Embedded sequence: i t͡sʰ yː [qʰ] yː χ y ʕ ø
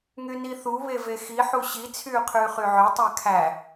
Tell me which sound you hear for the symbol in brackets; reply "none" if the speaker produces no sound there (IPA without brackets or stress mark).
qʰ